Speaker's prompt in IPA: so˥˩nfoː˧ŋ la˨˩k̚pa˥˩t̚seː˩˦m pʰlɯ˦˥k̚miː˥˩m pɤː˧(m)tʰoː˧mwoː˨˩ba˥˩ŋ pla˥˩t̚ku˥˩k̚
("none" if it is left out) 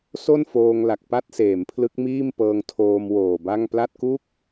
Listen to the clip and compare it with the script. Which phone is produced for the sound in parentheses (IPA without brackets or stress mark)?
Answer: ŋ